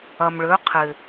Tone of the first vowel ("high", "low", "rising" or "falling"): low